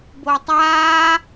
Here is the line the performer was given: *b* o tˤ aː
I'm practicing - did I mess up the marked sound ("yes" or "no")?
no